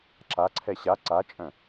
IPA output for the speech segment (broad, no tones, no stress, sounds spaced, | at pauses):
ǁ a ǀʰ ɛ ɕ a ǀ a t͡ʃʼ œ̃